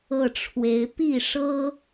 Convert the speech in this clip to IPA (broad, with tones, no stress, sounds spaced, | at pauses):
ɤ˥˩ ʈ͡ʂʰ w e˧˥ ɪ̯ p i˥˩ ʂ ɤ˥